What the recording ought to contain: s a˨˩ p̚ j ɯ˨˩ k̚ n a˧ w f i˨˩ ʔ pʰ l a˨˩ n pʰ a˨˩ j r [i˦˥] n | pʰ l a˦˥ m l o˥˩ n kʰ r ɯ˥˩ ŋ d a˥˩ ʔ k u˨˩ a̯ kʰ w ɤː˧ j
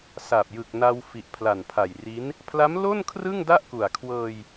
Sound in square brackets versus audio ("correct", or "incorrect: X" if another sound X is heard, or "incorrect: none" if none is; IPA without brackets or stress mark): correct